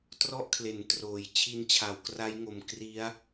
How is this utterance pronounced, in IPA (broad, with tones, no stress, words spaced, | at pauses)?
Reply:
trɔ˥˩ʔkʰle˩˦ntroː˩˦j t͡ɕʰi˧nt͡ɕʰa˩˦w kra˦˥jŋo˨˩m kri˦˥a̯